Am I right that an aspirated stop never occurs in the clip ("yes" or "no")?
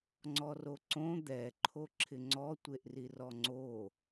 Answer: no